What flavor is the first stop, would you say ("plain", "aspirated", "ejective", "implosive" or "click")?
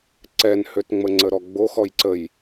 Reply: click